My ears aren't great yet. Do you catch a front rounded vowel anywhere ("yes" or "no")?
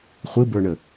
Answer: no